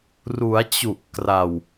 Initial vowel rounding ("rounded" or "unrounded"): rounded